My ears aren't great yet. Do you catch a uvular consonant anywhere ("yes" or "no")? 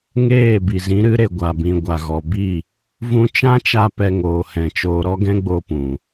no